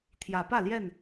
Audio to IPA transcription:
t̪ʰ j ä˨˦ p ä˥˨ l j ɛ˥˨ n

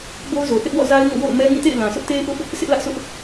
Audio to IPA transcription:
b o˦ ʊ̯ z o˨ θ ɪ˦ ʔ w ɔ̰˦˨ z a˦ ɪ̯ ŋ o̰˦˨ w o̰˦˨ ʊ̯ m ɛ˦ ŋ ĩ˦˨ t ḛ˦˨ ɪ̯ l ã˨ sʰ ʊ˦ ʔ t e˦ ɪ̯ ʔ ʊ˦ ʔ | sʰ ɪ˦ ʔ l ä˦ ʔ sʰ ʊ˦ ʔ

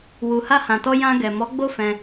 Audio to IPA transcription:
w u˨ h a˧ h ã˨ t ɔ˧ j ã˧ ɡ ɛ˨ m ɔ˨˦ ɡ͡b o˦ f ɛ̃˧

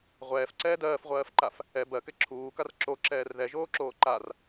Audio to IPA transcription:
ʁʷ ɛː f ǀ ɛː d ɜː f ʁʷ ɜː f ǃ a f | ɛ b ɜ k ɛ ǁʰ uː k a r ǁ o ǁ ɛː r ð ɛ ʒ oː ǁ oː ǃ a r

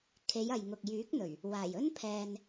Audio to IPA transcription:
kʰ e˨˧ j ɐ˨ j ŋ ʊ˨ k̚ j yː˨˥ k̚ n̪ ɵ˨˩ ɥ | w aː˨˩ j ɵ˥ n pʰ ɛː˧ n

